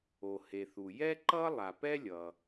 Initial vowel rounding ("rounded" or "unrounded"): rounded